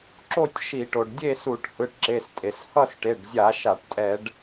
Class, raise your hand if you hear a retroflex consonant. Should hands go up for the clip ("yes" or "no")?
yes